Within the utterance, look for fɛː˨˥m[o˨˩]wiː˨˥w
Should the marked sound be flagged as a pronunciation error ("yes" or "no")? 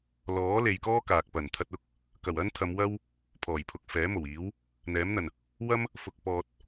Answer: no